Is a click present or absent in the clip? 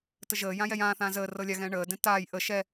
absent